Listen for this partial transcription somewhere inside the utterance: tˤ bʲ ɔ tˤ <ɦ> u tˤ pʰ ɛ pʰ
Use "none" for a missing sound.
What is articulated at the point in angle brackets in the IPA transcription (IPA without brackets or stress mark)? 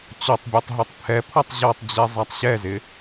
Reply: ɦ